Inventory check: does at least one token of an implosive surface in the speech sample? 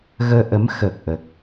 no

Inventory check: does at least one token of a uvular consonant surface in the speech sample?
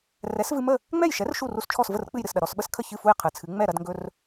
yes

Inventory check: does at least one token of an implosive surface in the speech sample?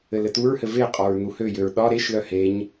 yes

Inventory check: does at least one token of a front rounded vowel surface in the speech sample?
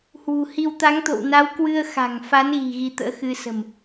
no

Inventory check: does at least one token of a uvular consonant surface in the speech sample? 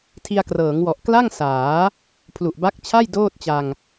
no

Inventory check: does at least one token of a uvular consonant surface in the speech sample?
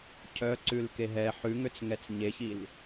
no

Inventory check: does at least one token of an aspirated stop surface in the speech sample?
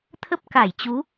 yes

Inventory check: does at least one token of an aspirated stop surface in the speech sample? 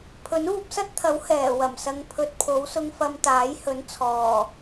yes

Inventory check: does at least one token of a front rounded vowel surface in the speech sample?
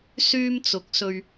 yes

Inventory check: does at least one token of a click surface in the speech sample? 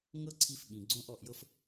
yes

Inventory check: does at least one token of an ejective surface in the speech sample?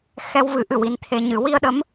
no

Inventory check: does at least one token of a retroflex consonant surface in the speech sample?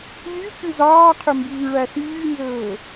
yes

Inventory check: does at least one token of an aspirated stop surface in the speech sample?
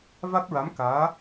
no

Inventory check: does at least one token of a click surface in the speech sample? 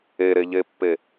no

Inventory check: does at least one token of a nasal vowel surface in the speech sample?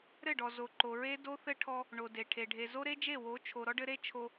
no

